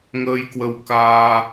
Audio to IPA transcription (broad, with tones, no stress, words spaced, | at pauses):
ŋəː˧jkwə˧wkaː˧